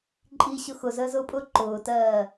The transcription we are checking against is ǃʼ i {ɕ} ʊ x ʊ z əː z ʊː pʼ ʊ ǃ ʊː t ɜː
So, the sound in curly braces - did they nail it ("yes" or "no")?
yes